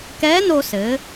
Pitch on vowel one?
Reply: rising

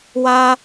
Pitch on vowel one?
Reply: high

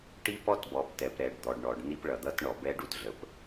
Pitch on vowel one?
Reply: high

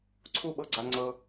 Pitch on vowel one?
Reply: falling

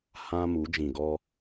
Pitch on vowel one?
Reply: high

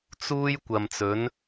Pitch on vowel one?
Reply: high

